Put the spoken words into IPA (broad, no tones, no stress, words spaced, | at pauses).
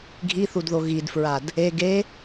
ɡʱiθudðo ɣidfɹad | e ɡe